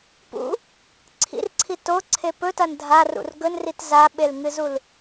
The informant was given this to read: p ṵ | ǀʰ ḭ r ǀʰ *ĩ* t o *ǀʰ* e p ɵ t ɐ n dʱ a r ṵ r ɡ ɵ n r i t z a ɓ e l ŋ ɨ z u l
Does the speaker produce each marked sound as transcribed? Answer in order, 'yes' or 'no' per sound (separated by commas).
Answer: no, yes